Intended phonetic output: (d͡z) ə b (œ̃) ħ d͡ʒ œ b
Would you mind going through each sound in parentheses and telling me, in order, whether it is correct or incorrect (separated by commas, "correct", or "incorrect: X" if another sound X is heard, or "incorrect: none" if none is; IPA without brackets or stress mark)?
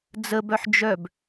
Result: correct, incorrect: œ